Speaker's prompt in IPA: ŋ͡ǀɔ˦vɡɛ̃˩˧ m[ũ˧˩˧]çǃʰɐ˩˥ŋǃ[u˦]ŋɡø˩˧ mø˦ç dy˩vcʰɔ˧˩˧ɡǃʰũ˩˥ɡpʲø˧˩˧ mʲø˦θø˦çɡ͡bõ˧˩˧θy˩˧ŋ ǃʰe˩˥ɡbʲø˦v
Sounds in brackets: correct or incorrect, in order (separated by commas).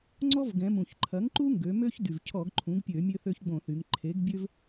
incorrect, correct